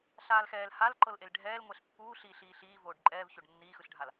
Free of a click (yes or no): no